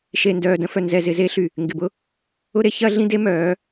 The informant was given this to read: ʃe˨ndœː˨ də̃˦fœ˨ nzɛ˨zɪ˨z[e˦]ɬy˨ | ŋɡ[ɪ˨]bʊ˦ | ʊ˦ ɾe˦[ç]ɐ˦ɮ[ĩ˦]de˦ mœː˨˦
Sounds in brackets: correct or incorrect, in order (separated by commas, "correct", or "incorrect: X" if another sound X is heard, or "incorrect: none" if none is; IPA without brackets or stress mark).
correct, correct, correct, correct